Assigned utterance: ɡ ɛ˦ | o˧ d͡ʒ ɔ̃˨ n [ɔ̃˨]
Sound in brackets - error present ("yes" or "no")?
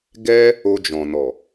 yes